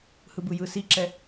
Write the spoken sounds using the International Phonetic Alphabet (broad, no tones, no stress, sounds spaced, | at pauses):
h ɯ b ɯ j ɯ s i ǁ ɛ